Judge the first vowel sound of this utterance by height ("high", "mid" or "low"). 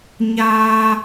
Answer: low